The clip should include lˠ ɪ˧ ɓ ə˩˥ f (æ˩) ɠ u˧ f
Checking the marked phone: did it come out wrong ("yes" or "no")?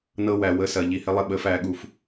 yes